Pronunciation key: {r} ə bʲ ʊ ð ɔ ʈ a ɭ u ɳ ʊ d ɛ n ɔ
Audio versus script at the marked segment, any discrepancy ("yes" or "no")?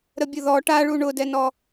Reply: yes